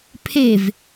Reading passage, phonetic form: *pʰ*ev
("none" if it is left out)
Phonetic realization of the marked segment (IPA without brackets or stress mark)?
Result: pʰ